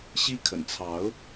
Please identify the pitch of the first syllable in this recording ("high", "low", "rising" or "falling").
high